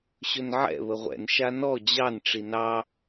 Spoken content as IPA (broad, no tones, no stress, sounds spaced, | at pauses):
ɕ ɵ n ʕ ɛ̰ β ə ʁʷ ɛ̰ n ʃ a n ɔ d͡ʑ ɑ n ʈ͡ʂ i n ɑ